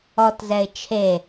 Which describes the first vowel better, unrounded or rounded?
rounded